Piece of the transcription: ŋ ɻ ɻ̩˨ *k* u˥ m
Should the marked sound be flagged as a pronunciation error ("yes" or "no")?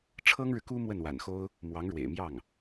no